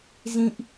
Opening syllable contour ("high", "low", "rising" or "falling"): high